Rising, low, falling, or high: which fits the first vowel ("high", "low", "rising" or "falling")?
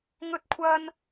high